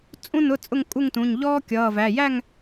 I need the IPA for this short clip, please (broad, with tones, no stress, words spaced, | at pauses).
t͡sʼũ˥ nʊ˧˥˧t͡sʼʊ˥˧ŋ kʼu˥˧ŋtũ˩˧˩ɲ ʎɔː˥ kʲʌː˩˧˩væ˩˧˩ jæ˥˧ŋ